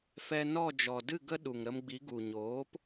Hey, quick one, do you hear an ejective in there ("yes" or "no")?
no